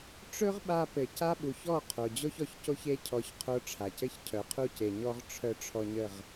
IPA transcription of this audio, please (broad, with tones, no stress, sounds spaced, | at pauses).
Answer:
ʈ͡ʂ ɵ˦ ʁ ɓ a˧ p ɘ˨ c a˦ ɓ u˨ ç ɔ˦˨ qʰ o˨ d͡ʑ o˦ ç ɔ˨ ç c o˦ ç e˦ cʰ ɔ˧ ç qʰ o˧ ʈ͡ʂʰ a˨ c ɘ˦ ç cʰ œ˨ qʰ u˦˨ c e˨ ɲ ɔ˦ ʁ ʈ͡ʂʰ œ˧ ʈ͡ʂʰ ɔ˧ ɲ ə˦˨ ʁ